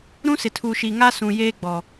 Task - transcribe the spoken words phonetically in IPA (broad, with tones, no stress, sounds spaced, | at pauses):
ɾ ũ˦ s ɪ˨ tʰ u˨ ʃ i˨ ŋ a˦ s ũ˨ j eː˦ ɡ͡b ɔ˨